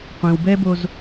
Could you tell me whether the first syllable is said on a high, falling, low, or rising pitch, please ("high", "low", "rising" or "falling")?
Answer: low